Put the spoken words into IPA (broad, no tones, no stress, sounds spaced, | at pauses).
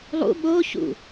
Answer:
lˠ ṵ ɓ o ç ṵ